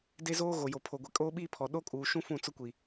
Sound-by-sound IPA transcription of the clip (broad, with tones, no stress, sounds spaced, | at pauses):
d e˦ z oː˦ ɣ o˨ j o˨ pʰ o˨ ɡʷ e˨ kʼ oː˦ ɓ iː˦ pʰ ɔ˨ ɗ o˦ kʼ uː˨ ʃ ũ˦ f ũ˦˨ t͡s ʊ˦ kʷ i˨